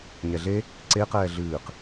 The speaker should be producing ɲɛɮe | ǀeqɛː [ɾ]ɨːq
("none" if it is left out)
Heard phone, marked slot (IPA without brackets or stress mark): ɮ